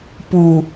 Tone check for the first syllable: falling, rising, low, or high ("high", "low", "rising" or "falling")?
low